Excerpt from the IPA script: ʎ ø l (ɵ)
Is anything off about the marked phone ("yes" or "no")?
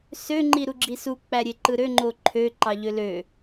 yes